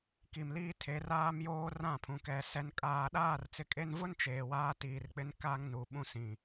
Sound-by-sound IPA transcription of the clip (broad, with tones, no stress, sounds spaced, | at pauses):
k i˨ m l iː˦ tʰ e˨˦ r aː˦ m j oː˦ r ã˦˨ pʰ ũ˨ k ɛ˨ s ɛ˨ n kʼ aː˨ ɗ aː˦˨ r t͡s ɪ˨ kʼ e˦ n v ʊ˦ n t͡ʃ eː˨ w aː˦ t iː˨ r k͡p ɪ˦ n k a˦ ŋ n u˨ ɓ ũ˦ s ĩ˨